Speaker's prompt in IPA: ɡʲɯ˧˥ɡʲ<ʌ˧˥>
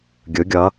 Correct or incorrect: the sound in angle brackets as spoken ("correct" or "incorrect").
correct